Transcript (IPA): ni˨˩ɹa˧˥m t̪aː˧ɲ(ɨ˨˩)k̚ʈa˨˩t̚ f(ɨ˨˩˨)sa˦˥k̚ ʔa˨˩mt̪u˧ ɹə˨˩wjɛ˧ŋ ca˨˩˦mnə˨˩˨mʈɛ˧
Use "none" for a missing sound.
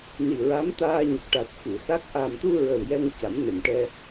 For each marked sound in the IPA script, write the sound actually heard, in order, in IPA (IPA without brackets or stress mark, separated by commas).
ə˨˩, ɨ˨˩˨